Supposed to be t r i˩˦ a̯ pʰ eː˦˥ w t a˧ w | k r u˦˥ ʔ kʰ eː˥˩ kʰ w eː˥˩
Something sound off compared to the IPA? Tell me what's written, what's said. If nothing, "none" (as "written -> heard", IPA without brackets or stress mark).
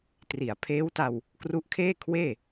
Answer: none